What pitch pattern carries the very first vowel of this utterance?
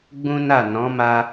high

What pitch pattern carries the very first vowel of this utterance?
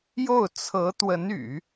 falling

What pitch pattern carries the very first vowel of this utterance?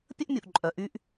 high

